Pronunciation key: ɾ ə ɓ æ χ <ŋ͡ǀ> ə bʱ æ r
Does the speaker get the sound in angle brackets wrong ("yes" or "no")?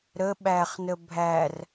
yes